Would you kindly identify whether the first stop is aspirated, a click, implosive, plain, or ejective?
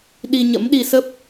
implosive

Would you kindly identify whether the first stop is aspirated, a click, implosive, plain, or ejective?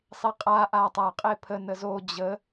ejective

